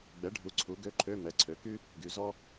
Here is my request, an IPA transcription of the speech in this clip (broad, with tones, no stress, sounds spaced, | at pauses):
ɡ͡b ɛ˩˥ ɖʱ u˩˥ ǀʰ u˩˥ ɡ ø˧˥˧ ǃʰ ø˧˥˧ m ɛ˩˥ ǀʰ ø˩˥ k y˥ | ɡ y˩˥ z ɔ˥